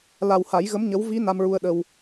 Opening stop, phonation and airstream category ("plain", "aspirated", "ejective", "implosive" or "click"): implosive